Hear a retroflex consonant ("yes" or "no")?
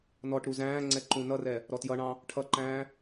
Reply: yes